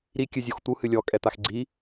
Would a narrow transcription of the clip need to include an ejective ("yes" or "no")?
yes